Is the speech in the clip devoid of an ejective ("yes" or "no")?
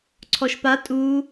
no